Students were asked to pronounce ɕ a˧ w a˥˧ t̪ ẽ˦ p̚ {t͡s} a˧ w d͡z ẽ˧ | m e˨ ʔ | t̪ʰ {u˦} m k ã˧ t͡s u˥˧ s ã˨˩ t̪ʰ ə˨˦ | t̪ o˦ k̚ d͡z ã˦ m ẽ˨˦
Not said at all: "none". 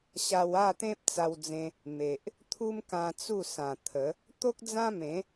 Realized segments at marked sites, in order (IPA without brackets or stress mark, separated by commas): t͡s, u˦